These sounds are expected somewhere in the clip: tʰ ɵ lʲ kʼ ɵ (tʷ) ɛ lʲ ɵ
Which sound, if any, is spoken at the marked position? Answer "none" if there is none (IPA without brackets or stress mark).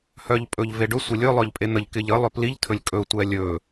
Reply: tʷ